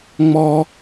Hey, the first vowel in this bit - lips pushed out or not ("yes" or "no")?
yes